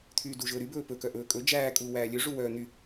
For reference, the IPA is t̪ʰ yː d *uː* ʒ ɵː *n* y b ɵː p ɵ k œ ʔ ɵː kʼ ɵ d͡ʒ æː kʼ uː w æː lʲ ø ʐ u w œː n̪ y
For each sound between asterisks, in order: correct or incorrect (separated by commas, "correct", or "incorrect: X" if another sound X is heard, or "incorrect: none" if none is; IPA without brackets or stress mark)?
incorrect: u, incorrect: ɾ